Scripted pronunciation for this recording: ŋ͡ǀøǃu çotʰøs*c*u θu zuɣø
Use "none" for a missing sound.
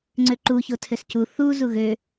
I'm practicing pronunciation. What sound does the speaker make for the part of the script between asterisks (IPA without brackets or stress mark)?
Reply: c